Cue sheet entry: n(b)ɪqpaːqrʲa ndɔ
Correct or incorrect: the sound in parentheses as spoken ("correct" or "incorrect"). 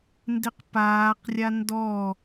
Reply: incorrect